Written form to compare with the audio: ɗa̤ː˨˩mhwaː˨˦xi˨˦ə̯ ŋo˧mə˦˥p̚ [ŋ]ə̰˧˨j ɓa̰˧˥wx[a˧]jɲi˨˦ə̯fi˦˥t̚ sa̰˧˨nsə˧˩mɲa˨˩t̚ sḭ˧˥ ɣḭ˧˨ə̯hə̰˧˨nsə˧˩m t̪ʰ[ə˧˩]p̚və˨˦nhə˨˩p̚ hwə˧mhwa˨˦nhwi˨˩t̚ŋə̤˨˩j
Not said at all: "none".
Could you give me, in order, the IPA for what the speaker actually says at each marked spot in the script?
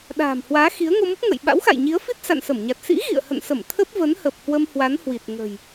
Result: ŋ, a̰˧˨, ə˦˥

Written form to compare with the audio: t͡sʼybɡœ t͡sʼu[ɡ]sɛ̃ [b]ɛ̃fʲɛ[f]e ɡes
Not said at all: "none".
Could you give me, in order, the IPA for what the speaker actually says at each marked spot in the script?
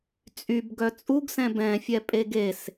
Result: ɡ, b, pʼ

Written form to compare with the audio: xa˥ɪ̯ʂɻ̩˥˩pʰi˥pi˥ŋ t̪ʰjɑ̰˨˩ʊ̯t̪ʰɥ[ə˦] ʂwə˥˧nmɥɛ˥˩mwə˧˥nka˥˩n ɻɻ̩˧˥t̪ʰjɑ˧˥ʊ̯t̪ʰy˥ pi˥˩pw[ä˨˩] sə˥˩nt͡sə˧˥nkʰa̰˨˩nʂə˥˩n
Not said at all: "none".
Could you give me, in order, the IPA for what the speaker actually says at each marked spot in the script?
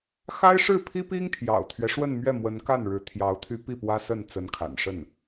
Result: ɛ˦, ä˥

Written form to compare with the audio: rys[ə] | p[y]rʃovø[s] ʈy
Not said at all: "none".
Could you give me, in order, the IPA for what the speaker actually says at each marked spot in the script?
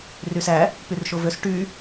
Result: æ, y, s

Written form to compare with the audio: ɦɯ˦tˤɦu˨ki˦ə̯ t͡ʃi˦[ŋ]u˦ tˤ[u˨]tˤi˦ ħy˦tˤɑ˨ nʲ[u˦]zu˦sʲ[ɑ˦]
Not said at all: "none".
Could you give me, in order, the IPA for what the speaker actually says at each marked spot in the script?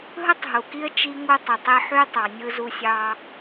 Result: ŋ, u˨, ɯ˦, ɑ˦

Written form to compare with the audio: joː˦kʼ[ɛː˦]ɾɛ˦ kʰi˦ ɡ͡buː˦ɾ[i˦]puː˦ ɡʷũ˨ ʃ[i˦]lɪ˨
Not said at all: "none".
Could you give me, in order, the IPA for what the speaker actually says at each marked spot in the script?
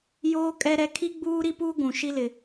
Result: ɛ˦, i˦, i˦

